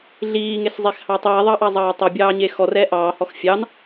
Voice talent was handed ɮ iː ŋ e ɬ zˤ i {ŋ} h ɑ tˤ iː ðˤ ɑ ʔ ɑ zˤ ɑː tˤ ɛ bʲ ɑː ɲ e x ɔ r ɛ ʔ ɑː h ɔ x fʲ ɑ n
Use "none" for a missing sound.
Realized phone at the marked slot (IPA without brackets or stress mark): x